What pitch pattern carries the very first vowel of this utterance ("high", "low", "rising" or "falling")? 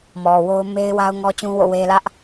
low